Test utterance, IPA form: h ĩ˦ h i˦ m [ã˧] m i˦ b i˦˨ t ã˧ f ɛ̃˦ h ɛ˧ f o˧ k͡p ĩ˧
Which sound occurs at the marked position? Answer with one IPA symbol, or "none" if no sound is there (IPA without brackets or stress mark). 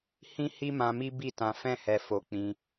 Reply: ã˧